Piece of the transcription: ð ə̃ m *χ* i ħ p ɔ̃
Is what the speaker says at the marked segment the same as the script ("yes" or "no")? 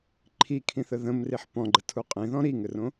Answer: no